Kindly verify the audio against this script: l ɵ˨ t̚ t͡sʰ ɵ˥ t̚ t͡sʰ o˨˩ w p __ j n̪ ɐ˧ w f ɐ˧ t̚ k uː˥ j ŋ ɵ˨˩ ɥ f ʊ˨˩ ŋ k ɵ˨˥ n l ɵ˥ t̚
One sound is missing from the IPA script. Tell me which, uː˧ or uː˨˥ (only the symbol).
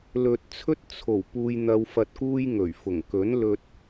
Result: uː˧